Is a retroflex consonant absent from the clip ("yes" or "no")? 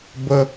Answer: yes